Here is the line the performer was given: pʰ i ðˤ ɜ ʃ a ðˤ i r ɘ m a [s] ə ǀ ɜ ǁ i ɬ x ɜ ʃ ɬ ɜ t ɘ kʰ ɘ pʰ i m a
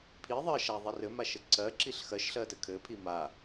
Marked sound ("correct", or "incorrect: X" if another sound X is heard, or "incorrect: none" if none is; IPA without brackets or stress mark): incorrect: ʃ